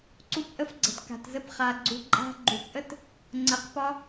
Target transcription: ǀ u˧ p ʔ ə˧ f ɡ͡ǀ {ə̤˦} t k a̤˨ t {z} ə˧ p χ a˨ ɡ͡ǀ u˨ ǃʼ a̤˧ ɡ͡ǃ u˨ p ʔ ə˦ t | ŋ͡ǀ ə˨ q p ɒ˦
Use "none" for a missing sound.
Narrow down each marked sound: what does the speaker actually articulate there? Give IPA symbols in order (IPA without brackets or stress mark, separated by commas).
ə̤˨, z